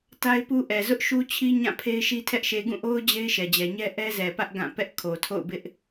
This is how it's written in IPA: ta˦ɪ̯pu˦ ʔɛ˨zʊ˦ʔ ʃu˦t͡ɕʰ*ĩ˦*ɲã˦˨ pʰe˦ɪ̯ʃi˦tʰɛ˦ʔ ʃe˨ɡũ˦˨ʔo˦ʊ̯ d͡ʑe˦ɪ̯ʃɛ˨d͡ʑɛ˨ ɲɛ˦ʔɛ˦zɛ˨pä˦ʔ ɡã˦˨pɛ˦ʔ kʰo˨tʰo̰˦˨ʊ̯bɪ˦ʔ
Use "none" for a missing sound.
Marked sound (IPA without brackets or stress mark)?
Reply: i˦